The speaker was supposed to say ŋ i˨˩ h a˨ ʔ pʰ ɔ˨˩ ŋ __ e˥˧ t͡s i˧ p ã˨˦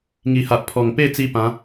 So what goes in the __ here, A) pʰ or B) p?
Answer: B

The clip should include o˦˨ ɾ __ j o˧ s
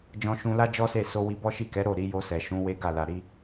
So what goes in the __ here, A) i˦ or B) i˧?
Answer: B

